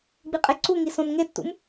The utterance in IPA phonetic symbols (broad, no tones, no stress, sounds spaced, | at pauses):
ɡ͡b i qʼ e ǀ u ŋ i s õ n ŋ e tː ṵ m